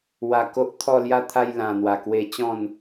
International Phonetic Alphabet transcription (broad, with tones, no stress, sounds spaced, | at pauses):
w a˧ k o˦ ʔ t̪ʰ ɔ˥˧ l j a˦ t̪ʰ a˦ j l ã˧ n̪ w a˧ k w e˦ t͡ɕ ɔ̃˥˧ n